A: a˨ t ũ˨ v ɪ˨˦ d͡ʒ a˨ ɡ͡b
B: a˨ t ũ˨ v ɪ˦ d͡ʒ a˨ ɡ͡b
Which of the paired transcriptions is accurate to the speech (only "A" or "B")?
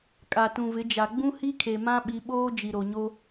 A